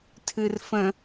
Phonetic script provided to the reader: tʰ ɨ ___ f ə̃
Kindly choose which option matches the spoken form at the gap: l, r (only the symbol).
r